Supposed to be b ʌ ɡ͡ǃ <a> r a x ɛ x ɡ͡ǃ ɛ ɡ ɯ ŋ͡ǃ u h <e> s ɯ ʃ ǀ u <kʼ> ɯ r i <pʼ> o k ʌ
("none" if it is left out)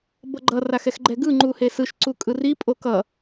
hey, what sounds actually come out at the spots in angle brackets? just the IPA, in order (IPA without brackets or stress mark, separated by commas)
ʌ, e, kʼ, pʼ